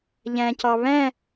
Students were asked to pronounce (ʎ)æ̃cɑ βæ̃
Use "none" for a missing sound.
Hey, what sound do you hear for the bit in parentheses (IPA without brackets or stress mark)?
ʎ